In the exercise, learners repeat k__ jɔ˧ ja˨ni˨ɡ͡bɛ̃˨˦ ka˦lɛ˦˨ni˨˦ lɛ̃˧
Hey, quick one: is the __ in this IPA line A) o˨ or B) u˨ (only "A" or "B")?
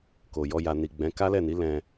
A